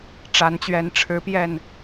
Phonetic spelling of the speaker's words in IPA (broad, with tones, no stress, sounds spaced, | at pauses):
ʈ͡ʂ a˨˦ n t͡ɕ ɥ ɛ˨˦ n ʈ͡ʂʰ ɻ̩˨˦ p j ɛ˨˩ n